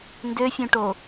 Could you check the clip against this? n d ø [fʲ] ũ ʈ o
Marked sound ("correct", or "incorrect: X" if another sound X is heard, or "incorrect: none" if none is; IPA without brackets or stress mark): correct